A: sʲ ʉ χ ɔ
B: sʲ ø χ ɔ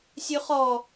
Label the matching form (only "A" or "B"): A